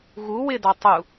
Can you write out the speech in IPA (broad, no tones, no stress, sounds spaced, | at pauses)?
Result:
ɣ u w ɪ d ɔ tˤ u